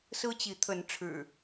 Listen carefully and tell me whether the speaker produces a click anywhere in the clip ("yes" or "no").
no